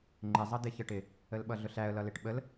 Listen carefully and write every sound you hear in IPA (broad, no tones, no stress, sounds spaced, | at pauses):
ŋ͡ǃ ɪ zˤ ʌ d ɪ ç ə ʈ ɪ | ə l ɓ ʌ ɮ ʊ ɬ æ ə̯ l ʌ l ɪ ʈ ɓ ə l